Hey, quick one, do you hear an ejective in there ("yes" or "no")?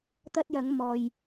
no